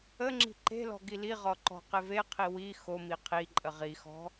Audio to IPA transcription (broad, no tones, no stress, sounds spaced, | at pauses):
ə ŋ͡ǁ i̤ ǃ e̤ l ɔ̤ ɡ i l i ʁ ɔ ǃ ɔ̤ q e v e qʰ i w i x o m i qʰ i ǃʼ ə ʁ i x ɔ̤